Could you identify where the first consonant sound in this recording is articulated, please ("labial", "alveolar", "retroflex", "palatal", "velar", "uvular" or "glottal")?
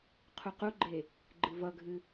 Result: uvular